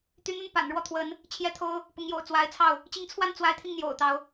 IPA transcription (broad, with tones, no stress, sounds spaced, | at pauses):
t̪ y˧˥ n̪ ə˥˩ n p a̰˨˩ n ɻ w ɔ˥˩ t̪ʰ w ə˧˥ n | t͡ɕʰ j ɛ˥˩ t̪ʰ o˥ ʊ̯ | p ʊ˧˥ ŋ j o̰˨˩ ʊ̯ t͡s w a˧˥ ɪ̯ t͡sʰ ɑ˥˩ ʊ̯ | t͡ɕ i˧˥ ŋ t͡sʰ w a˥˩ n t͡s w a˧˥ ɪ̯ t̪ʰ i˧ ŋ n̪ j o̰˨˩ ʊ̯ t̪ ɑ˦ ʊ̯